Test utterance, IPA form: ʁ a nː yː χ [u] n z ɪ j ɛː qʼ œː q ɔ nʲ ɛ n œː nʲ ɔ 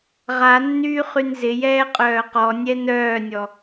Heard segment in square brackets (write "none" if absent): y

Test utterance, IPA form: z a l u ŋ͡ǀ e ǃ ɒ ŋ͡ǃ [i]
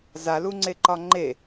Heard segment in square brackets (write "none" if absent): e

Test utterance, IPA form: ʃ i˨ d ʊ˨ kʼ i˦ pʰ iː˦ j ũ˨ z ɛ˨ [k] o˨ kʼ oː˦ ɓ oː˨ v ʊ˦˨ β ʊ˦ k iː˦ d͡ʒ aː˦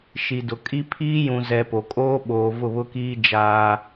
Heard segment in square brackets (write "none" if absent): p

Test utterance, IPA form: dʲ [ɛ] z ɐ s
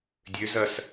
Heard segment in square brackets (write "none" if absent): ø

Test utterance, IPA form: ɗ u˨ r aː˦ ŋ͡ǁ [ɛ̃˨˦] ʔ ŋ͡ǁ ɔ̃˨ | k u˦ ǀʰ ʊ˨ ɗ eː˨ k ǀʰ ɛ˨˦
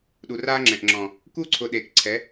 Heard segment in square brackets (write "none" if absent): ɛ̃˨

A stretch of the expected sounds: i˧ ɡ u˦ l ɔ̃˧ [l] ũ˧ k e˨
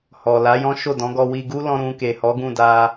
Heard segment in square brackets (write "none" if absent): ɾ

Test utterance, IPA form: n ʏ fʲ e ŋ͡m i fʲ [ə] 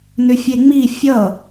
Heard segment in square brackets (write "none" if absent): ʌ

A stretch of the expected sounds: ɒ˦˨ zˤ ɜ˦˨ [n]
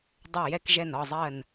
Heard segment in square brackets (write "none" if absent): n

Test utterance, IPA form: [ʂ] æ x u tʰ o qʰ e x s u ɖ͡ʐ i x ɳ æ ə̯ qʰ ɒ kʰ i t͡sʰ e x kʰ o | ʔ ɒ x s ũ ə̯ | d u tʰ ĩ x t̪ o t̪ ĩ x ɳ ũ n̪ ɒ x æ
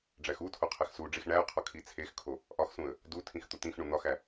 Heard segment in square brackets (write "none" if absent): ɖ͡ʐ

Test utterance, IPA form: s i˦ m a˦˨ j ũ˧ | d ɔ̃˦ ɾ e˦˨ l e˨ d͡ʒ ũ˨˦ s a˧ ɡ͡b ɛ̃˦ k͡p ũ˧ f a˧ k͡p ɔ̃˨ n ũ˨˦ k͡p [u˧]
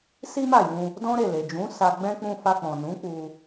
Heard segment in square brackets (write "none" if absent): u˧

